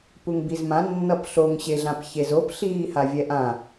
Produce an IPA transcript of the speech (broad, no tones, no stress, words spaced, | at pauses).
puŋbizmãnːʌp ɬoŋɕeɮãp çezop ɬiːhavʲɛʔã